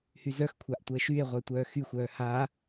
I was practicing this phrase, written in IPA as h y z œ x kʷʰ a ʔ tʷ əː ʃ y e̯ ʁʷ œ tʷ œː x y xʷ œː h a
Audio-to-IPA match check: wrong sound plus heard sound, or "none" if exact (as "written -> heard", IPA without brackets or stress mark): none